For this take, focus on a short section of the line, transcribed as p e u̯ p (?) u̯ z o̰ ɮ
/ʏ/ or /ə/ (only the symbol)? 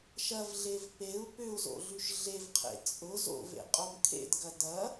ʏ